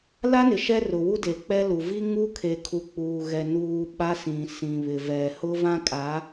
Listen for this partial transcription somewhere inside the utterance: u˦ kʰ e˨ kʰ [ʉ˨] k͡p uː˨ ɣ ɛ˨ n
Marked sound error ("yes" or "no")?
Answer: yes